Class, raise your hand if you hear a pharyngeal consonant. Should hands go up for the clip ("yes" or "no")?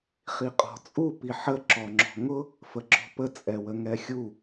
yes